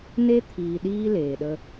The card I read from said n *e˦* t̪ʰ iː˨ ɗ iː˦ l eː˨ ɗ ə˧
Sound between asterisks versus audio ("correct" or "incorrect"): correct